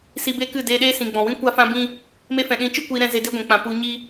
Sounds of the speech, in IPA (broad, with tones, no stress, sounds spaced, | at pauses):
s i˧ b e˦ k ɨ˦˨ d eː˧ ɗ eː˦ s ĩ˨ ɡ͡b ɔ̃˨ w ĩ˦ kʷ a˦ f ã˦ b ĩ˦ | m e˧ f ɛ̃˨ ɗ ĩ˨˦ t͡ʃ ɨ˦ kʷ iː˧ ɾ ɛ̃˧ z e˧ d e˦ ɡʷ ɛ̃˨ k͡p ã˨ p u˧ ɲ i˦